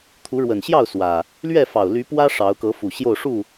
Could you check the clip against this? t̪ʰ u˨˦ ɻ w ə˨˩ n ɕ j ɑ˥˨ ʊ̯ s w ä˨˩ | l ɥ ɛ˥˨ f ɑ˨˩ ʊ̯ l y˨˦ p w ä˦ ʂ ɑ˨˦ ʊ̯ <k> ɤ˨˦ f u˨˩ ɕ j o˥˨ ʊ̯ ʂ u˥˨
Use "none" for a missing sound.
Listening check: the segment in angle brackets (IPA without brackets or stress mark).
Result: k